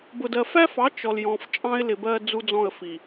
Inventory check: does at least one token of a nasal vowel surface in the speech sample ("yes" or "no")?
yes